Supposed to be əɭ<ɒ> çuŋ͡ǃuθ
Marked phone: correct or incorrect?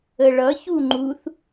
incorrect: ʌ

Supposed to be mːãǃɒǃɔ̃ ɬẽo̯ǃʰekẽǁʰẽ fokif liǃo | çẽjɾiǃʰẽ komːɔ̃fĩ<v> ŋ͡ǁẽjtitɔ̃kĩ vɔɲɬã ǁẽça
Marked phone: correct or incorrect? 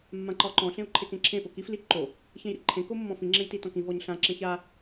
incorrect: none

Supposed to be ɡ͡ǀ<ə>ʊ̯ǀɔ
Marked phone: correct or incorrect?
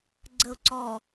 correct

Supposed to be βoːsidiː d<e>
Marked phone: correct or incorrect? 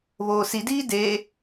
correct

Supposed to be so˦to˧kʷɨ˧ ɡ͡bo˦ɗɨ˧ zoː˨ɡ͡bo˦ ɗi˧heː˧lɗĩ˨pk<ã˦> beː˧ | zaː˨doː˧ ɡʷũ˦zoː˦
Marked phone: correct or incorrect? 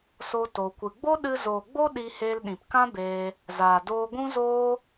correct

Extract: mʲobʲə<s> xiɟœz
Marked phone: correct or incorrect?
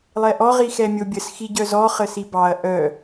correct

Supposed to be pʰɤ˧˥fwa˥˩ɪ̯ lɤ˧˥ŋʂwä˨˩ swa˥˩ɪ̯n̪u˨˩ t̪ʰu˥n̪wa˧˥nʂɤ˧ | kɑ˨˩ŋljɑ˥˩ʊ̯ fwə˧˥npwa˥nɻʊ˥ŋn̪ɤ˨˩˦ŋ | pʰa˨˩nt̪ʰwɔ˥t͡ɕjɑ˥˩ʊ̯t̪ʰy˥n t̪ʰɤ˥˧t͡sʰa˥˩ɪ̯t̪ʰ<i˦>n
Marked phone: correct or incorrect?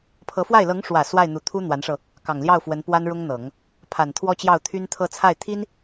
incorrect: i˥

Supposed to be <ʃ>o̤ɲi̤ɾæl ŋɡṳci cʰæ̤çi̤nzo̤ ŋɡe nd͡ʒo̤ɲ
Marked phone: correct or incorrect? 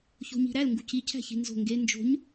incorrect: ç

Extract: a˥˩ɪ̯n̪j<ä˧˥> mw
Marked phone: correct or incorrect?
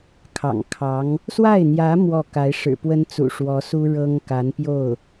correct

